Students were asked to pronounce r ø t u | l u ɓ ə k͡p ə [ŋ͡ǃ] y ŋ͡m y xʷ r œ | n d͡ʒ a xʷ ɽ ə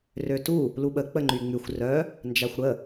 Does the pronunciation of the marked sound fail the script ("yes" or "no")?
no